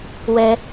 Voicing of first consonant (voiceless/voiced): voiced